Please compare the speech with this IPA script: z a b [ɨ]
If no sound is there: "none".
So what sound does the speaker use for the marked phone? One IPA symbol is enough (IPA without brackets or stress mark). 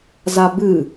ɨ